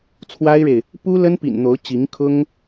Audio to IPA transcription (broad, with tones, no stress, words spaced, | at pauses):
t͡sʰwa˥ɪ̯ɻe˨ɪ̯ | pu˥ lə˥npḭ˨˩n n̪o˧˥ʊ̯ t͡ɕi˧˥ŋkʰʊ˥ŋ